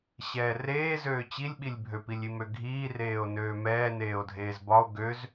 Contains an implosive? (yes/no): yes